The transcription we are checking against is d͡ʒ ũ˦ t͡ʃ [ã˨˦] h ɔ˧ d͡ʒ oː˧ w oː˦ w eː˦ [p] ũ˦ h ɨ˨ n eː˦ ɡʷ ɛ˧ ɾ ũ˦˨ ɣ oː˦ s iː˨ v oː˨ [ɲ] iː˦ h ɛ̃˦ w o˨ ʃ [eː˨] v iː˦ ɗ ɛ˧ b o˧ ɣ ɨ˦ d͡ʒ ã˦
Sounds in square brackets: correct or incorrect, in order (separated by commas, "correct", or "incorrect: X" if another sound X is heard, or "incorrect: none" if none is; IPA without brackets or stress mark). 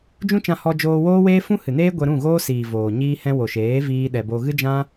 incorrect: ã˧, incorrect: f, correct, incorrect: eː˨˦